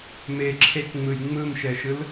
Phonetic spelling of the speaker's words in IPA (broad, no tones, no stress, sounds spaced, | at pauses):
m e ǁʰ e k ŋ͡m ɯ j ŋ͡m ɯ m ʃ ɛ ʃ ɯ l